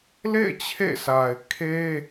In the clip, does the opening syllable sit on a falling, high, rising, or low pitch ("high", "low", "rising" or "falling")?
falling